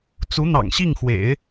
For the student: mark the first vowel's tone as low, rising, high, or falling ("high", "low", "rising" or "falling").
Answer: rising